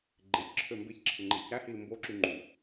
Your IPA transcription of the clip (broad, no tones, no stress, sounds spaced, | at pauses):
ɡ͡ǃ e ç ǁʰ ø m b e ç ǁʰ ɯ ŋ͡ǃ e c æ h i l m b o ǁ y ŋ͡ǃ u